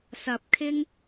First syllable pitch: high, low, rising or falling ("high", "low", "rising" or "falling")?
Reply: rising